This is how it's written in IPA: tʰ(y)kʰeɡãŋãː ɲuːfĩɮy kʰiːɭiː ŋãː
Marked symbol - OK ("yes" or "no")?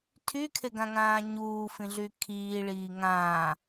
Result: yes